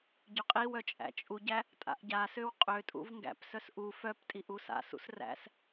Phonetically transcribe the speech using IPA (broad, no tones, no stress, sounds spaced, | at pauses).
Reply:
ɟ ø qʼ i w œ t͡ʃʼ æ̰ t͡ʃʼ u ɟ æ | tʼ a̰ ʔ ɟ a s ø w qʼ ø tʼ ṵ v ŋ ɡ æ̰ p s œ s ʔ u f œ p tʼ i ʔ u s a̰ s ṵ s r æ̰ s